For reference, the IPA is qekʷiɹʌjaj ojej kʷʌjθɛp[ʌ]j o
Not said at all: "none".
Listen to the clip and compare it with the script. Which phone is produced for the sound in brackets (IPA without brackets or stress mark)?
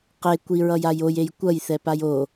a